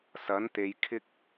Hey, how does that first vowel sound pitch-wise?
rising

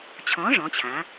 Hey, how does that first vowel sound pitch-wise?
rising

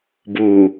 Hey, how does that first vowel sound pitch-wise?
low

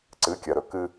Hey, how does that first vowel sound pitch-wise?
rising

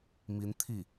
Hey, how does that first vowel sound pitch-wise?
rising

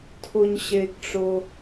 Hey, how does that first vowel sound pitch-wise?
high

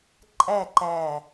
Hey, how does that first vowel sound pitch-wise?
falling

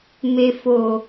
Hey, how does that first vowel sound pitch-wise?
low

